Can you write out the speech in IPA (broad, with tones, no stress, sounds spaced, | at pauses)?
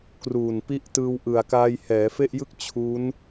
k r uː˨˩ n p i˦˥ ʔ t ɯː˧ w ʔ ɯ˨˩ a̯ k aː˧ j h ɛː˩˦ f e˥˩ ʔ j ɯ˥˩ k̚ t͡ɕʰ u˦˥ n